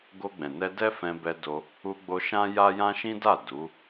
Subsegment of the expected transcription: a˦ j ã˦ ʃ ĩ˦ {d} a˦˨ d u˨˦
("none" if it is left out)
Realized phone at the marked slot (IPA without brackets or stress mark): d